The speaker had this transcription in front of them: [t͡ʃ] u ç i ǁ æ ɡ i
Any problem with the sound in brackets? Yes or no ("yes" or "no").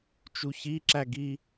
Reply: no